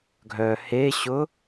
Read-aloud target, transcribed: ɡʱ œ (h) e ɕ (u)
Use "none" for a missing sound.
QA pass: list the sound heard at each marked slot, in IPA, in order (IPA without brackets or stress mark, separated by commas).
h, ʊ